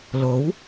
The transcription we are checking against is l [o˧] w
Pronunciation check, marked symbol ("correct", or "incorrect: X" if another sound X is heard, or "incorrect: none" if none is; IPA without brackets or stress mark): incorrect: o˨˥